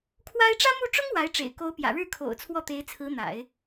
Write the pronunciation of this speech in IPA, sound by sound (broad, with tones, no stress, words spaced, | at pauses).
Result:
kʰwa˥ɪ̯ ʈ͡ʂä˥mu˥˩ ʈ͡ʂʊ˥ŋ wa˧˥ɪ̯ʈ͡ʂḛ˨˩ɪ̯ ko˧˥ʊ̯ pjä̰˨˩ɻɻ̩˥˩kʰo̰˨˩ʊ̯ t͡sʰwɔ˥˩t̪e˧˥ɪ̯t͡sʰɹ̩˧˥ n̪a̰˨˩˦ɪ̯